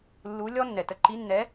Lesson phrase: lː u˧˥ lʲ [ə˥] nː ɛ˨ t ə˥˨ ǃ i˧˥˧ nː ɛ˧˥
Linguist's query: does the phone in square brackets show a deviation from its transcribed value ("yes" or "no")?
yes